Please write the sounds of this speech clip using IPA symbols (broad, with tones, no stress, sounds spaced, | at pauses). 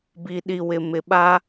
b i˨ ɗ i˨ w ɪ˨ m ɪ˨ ɓ a˦